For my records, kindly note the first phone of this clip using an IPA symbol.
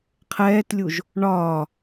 qʰ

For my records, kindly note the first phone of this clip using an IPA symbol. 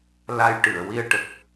l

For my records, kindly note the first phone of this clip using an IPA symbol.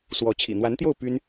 s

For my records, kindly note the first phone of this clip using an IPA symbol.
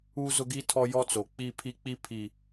u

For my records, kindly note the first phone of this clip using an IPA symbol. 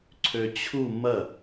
ǀʰ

